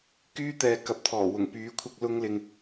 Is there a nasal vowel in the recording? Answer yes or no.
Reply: no